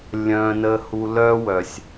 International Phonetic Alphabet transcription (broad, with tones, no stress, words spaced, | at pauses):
lʲœ̃˨nə˨hu˨ lœ˦wœ˨sʲ